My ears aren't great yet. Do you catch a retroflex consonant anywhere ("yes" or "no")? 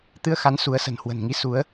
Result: no